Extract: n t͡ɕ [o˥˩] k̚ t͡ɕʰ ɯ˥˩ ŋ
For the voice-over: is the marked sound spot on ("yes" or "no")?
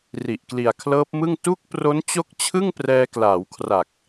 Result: no